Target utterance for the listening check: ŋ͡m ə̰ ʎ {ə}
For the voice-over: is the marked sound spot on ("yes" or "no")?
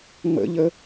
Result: yes